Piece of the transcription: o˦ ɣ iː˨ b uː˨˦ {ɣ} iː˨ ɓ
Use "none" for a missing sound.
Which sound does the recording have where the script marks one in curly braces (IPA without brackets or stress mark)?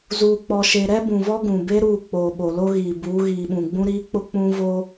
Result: ɣ